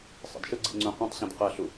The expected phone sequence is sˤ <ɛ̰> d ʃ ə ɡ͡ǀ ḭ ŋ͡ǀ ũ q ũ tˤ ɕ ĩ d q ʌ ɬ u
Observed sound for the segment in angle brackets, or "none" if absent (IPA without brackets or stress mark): ə̰